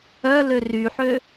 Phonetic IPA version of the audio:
œ l ø r y ħ ø

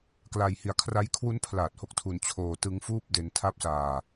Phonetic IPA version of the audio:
k l a˧ j h i˧ a̯ kʰ r a˦˥ j kʰ w u˦˥ n pʰ l aː˨˩ t̚ h o˦˥ k̚ tʰ u˧ n t͡ɕʰ oː˧ t ɯ˦˥ ŋ f uː˥˩ p̚ d e˧ n tʰ a˦˥ p̚ s aː˧

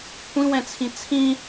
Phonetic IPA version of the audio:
kʷʰ ĩ w ɛ̃ t͡sʰ ĩ t͡sʰ ĩ

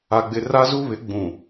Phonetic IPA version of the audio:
a˨ ɡ͡b ɪ˨ r a˦ z u˦ β ɪ˨˦ ɡ͡b ũ˨

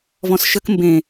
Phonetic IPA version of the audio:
v ɔ̃ s ʃ ə k m b ẽ

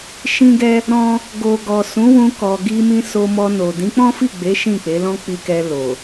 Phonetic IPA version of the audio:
ʃ ĩ˦ ɡ ɛ˦ | ɾ ɔ̃˦ | ɡ o˨ ɡ ɔ˨ s ũ˨˦ w ũ˧ k ɔ˨ ɡ i˧ m ĩ˧ s o˧ m ɔ˧ n o˨ d ĩ˨˦ k͡p ɔ̃˦ f i˦˨ ɡ͡b e˨˦ ʃ ĩ˦˨ k͡p e˨˦ l ɔ̃˦ k͡p i˧ k ɛ˧ l o˨

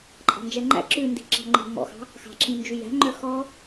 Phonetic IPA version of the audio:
ǃʼ ɑ̤ n d͡ʒ ɛ ŋ͡ǃ æ̰ ǁ ʉ n d i̤ ǁ ɑ̤ ŋ͡ǃ i̤ m ɔ̰ x ɑ̤ | x ɑ̤ ǁ ĩ n d͡ʒ y j æ̤ ŋ͡ǃ œ x ɔ

